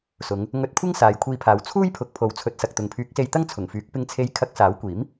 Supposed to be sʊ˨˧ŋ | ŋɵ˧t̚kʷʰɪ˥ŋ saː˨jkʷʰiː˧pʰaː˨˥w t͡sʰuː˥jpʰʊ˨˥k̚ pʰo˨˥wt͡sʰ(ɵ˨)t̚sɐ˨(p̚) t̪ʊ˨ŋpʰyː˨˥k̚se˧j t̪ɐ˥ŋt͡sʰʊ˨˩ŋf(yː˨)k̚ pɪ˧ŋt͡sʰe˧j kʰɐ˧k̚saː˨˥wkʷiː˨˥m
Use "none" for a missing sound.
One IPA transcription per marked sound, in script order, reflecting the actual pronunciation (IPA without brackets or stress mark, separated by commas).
ɵ˨˥, k̚, yː˨˥